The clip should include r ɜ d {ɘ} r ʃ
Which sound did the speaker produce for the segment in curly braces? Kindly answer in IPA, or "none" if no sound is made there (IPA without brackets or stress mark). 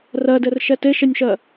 ɘ